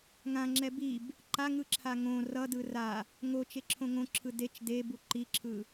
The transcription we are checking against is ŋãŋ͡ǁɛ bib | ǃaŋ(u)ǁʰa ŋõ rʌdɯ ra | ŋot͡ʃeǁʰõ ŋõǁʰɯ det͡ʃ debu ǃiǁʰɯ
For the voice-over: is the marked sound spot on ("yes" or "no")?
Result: no